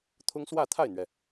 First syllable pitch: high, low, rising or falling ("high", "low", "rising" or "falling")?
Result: high